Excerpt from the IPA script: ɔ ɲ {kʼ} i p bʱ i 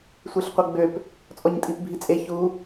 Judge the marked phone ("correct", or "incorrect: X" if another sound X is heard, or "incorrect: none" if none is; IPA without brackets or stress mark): incorrect: tʼ